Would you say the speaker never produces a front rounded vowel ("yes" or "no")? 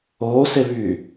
no